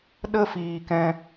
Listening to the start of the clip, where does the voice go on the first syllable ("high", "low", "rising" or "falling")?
high